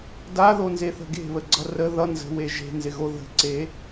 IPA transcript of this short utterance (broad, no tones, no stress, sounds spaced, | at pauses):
d a ð o n z e θ ə̤ ɡ e̤ β ə ɡ͡ǀ ʌ r ə ð ʌ n z ə̤ w e ʒ e̤ n z ɪ ɣ o ð ə̤ ǀ e